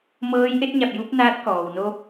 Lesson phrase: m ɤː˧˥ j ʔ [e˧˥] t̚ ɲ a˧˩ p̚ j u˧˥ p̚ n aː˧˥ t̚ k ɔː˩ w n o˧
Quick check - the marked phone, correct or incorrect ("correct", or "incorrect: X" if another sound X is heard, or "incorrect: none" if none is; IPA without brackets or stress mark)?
correct